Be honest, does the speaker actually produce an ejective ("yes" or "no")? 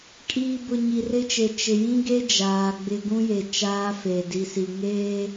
yes